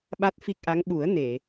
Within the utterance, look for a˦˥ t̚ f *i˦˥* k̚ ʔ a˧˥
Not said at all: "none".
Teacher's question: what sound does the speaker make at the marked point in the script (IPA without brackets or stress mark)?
i˦˥